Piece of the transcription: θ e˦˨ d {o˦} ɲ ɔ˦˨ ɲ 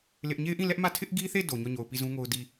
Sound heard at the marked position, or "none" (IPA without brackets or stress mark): o˨